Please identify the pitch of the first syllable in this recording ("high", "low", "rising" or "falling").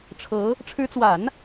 rising